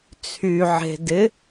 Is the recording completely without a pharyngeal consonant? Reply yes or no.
no